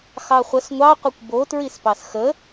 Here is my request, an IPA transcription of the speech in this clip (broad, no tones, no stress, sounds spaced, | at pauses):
x ɑ χʷ ə s ŋʷ ɑ qʷ i kʷ b o t ɹ i s p ɑ s x ə